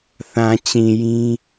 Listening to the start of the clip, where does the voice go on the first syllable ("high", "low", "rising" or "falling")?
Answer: low